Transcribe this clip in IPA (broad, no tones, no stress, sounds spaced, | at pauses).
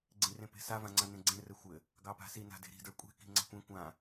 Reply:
ɡ͡ǀ ĩ r ẽ p e̤ s a v ã ŋ͡ǀ ã n ẽ ɡ͡ǀ ẽ r ɘ xʷ ɘ | ɡ ɑ p a̤ s i n a̤ d e̤ ɾ i̤ d ə˞ kʷʼ e̤ k i̤ ŋ͡ǀ ɑ̤ kʷ ẽ kʷ ã